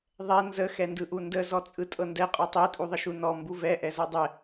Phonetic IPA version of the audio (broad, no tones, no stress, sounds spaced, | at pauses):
ðˤ ɛ n z ə x ɛ n d ɯ ʔ u n d ə z ɔ t͡sʼ ɯ tʼ ɤ n d ɛ qʼ ɔ tˤ i tʼ u ðˤ ə ʃ u n ɔ m b u v ɛ ʔ ɛ z ɤ dˤ ɛ